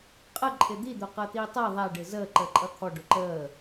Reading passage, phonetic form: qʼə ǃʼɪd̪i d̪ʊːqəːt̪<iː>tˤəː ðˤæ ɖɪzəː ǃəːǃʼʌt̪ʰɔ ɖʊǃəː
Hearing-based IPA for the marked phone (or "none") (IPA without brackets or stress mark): iː